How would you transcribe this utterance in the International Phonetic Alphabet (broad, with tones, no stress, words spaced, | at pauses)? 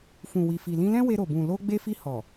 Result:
fũ˨wi˨fi˨ lĩ˧lɛ̃˦we˧ ɾo˨bũ˨lo˧ ɡ͡be˧fi˧ hɔ˨